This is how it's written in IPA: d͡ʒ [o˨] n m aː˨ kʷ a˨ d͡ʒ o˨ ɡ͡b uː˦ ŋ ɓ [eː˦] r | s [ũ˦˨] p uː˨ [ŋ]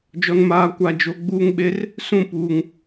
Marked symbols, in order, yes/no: no, no, yes, yes

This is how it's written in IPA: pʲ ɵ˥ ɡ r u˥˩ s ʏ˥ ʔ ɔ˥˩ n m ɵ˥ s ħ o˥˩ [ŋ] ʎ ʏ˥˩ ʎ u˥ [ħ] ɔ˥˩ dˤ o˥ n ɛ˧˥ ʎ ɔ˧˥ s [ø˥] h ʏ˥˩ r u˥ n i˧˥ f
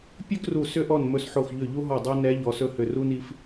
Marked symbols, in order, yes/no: no, no, no

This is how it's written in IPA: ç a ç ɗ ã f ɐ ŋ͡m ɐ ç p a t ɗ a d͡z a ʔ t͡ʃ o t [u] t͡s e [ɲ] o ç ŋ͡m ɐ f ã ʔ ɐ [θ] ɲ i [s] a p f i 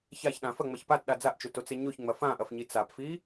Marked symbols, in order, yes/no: no, yes, no, no

